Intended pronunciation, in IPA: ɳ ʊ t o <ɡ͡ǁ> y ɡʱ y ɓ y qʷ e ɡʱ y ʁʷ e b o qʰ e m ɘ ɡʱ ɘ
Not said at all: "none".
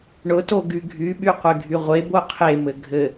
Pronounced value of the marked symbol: ɡ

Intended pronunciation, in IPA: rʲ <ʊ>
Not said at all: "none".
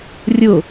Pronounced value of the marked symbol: ʊ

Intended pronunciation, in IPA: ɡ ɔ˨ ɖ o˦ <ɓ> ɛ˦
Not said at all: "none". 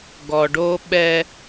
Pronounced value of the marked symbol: ɓ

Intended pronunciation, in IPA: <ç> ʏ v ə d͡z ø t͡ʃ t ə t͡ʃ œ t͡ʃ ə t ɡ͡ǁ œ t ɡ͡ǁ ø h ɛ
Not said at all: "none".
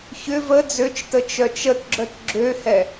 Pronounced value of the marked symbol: ç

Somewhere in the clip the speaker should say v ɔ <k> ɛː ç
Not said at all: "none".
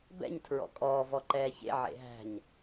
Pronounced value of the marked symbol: ǃ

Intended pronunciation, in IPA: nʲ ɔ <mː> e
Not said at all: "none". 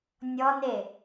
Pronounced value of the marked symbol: n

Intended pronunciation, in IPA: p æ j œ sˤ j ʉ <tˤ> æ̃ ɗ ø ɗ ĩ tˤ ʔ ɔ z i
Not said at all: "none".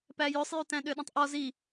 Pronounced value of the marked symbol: t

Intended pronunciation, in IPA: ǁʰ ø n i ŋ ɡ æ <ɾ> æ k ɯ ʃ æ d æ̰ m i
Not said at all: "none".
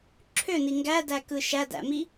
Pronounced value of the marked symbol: d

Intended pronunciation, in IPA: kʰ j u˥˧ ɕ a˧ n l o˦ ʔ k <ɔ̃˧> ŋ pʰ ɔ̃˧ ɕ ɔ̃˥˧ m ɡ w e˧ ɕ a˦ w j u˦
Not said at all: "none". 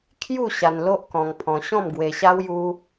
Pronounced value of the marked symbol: ɔ̃˧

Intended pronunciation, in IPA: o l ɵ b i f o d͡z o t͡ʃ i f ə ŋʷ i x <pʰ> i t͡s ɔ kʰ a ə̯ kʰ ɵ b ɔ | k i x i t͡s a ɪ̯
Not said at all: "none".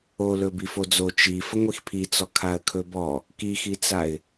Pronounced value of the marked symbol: pʰ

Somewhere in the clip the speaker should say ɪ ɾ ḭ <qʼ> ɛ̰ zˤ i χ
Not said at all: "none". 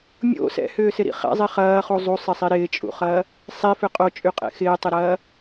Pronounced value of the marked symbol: χ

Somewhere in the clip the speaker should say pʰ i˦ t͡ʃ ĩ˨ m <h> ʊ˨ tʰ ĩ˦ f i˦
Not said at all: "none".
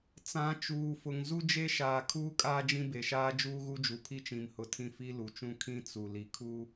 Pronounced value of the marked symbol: h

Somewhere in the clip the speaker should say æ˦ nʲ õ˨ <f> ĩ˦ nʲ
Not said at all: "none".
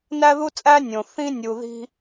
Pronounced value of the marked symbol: θ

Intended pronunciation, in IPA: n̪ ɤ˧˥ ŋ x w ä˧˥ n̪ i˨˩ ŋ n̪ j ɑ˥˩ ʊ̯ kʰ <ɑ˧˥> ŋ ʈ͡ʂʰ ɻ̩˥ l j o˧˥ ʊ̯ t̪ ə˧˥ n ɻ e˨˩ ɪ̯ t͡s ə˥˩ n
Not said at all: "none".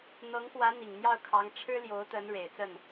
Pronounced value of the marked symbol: ɑ˧˥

